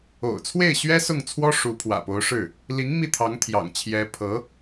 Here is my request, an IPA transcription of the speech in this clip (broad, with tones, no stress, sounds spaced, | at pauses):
o̰˨˩ ʊ̯ t͡sʰ w e˥˩ ɪ̯ ɕ ɥ ɛ˥ s ʊ˥˩ ŋ t͡sʰ w ɔ˥ ʂ u˧˥ pʰ w ä̰˨˩ p o˧˥ ʊ̯ ʂ ɻ̩˥˩ | l i˧˥ ŋ m i˥˩ t̪ʰ ɑ˧˥ ŋ t̪ʰ j ɑ̰˨˩ ŋ t͡ɕʰ j ɛ˧˥ pʰ ɤ˧˥